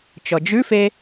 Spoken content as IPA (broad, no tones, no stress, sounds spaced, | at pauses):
t͡ʃ ɔ d͡ʒ ʉ f e